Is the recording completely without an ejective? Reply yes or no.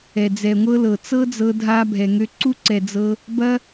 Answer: yes